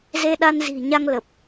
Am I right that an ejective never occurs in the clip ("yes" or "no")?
yes